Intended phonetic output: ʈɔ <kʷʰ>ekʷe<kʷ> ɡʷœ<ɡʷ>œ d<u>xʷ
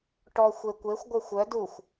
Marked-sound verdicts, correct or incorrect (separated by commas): incorrect, incorrect, incorrect, correct